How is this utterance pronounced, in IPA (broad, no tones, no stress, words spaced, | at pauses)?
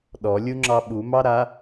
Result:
ɗɔlʲuŋ͡ǁɑ ɓumɑɾa